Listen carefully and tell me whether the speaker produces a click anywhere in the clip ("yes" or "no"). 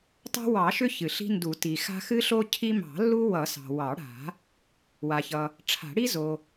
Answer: no